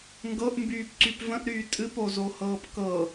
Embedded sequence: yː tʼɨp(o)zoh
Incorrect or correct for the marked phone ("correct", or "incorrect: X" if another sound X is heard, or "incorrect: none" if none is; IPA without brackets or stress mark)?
correct